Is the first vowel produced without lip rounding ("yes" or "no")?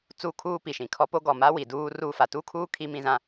no